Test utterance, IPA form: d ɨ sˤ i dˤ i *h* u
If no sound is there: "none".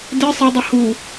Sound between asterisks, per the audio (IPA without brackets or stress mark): h